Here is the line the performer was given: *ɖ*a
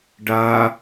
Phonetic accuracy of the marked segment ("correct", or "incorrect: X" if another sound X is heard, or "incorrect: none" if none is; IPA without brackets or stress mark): correct